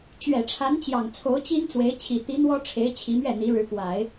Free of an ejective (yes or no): yes